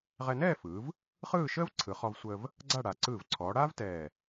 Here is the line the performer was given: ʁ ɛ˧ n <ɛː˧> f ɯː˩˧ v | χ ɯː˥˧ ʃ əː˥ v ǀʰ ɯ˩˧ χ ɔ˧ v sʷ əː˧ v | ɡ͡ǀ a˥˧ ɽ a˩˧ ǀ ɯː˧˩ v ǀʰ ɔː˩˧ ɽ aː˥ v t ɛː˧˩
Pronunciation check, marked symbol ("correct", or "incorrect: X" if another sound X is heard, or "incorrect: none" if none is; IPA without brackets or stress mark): incorrect: ɛː˥˧